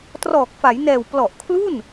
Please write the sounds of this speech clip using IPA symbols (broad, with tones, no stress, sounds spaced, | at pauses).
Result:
t r ɔː˨˩ k̚ f a˩˦ j n ɛː˨˩ w p l ɔ˨˩ ʔ kʰ l u˥˩ n